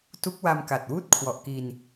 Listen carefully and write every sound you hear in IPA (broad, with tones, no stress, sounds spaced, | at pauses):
t u˦˥ k̚ w a˧ m k a˨˩ t̚ w uː˥˩ t̚ kʰ w ɔ˨˩ ʔ k i˧ n